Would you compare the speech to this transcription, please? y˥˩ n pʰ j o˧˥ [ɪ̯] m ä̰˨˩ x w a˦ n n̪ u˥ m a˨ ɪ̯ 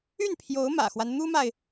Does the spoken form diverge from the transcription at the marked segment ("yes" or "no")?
yes